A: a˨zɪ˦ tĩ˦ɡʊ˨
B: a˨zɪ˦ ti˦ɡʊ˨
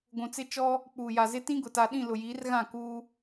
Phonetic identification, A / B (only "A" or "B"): A